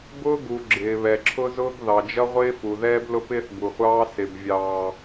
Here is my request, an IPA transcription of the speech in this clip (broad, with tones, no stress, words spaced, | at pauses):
bʊː˦ɡu˨ ɡ͡ǁɪː˨βɛ˨ǁʰʊ˦zʊː˦ɡ ðɑ˨d͡ʒʌ˦ʁʷɪː˦fu˨ ðɛː˦blʊ˦pɪː˦θ bu˨χʷɑː˦ sɪ˨bvʲɑː˨